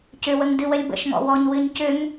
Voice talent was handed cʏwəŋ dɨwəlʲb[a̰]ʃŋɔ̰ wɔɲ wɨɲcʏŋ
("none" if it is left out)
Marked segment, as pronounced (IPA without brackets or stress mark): ə̰